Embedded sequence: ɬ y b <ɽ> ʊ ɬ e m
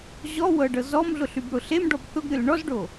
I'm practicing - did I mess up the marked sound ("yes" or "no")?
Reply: no